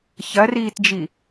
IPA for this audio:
ç ɐ r iː t d͡ʒ i

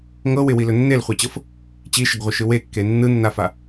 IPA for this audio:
ŋ ɤ w ɪ w i l ɵ nː e l χʷ a t͡ɕ ɤ f | t͡ɕ i ʃ ɪ ɡ ʁʷ ɪ ʃ ɯ w e kː e nː ɯ nː a f a

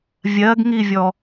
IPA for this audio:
vʲ ɜ ɡ ŋ i vʲ ɔ

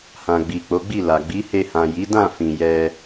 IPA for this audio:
h ã˨ ɡ͡b i˨ k͡p o˨˦ ɡ͡b i˦˨ l a˨ ɡ͡b i˨˦ h e˧ h ã˨ j i˨˦ d ã˦˨ f ĩ˨ j ɛ˧

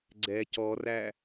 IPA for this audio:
ɡ͡ǀ ɛ c ɔ r æ

